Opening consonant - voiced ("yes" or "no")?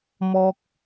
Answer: yes